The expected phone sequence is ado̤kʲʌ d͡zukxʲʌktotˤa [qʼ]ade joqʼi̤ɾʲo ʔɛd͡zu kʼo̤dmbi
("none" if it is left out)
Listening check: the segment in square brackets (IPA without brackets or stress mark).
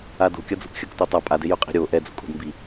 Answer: pʼ